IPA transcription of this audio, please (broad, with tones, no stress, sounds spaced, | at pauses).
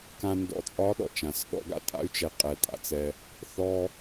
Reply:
k ã˨ n d ɔ̰˨ t͡sʼ ɒ˨˦ ɗ ɔ̰˨ t͡ʃ ã˨ s ɗ ɔ̰˧ ɡ a̰˦ tʼ a̰˦ y̯ t͡ʃ ɛ˨ qʼ ɛ˨ tʼ a̰˧ t͡s ɛ˧ | θ ɔ˧